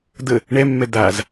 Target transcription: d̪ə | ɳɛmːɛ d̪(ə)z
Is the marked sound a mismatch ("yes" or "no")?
yes